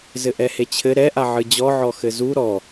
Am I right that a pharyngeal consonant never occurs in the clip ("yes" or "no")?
no